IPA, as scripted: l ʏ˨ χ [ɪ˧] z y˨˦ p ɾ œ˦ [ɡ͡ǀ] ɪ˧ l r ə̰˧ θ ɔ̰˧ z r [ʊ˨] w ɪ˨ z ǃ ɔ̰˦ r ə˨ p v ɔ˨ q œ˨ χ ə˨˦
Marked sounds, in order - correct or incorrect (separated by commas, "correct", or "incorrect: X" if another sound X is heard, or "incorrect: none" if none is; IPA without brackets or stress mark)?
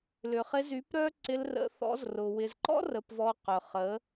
correct, incorrect: ǀ, correct